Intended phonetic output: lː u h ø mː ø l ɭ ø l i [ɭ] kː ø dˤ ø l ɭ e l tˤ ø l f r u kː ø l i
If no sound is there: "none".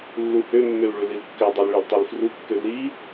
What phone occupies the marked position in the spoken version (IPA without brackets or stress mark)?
l